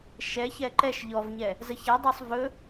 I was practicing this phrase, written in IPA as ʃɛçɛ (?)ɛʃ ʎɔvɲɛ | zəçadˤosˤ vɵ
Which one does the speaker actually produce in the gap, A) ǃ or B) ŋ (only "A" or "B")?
A